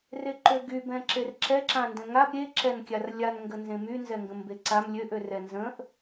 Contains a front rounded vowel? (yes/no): yes